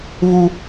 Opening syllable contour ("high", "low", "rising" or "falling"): high